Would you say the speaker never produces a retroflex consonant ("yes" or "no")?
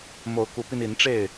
no